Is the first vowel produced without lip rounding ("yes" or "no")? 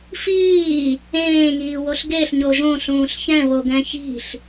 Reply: yes